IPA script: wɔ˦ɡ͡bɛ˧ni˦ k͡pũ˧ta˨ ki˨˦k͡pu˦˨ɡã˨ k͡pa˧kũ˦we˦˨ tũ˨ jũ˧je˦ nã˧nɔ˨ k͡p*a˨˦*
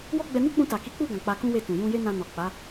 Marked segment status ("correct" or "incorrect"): correct